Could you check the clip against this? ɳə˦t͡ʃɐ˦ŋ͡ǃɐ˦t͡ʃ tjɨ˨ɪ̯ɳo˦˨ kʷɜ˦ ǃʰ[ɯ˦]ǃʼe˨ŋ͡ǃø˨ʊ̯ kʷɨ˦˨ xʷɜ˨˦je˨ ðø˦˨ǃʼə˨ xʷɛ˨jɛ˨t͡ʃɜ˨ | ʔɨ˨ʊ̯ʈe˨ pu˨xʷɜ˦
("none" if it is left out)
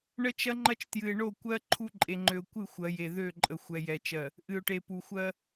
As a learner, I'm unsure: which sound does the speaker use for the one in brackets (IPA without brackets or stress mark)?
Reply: u˦